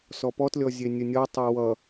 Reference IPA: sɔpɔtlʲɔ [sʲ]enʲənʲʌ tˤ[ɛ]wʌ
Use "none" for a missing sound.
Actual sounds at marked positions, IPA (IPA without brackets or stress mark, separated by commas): zʲ, ɛ